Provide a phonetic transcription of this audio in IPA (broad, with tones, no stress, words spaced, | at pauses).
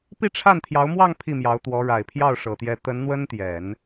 pi˥˧ʈ͡ʂʰa˥˩nt̪ʰjɑ˧˥ʊ̯mwɑ˥˧ŋ pʰi˥˩mjɑ˧˥ʊ̯t̪wɔ˧˥ ɻa˨˩ɪ̯pʰjɑ˥˩ʊ̯ʂɤ˨˩t̪jɛ˧˥ t̪ə˧˥nn̪wə˥nt̪jɛ˨˩˦n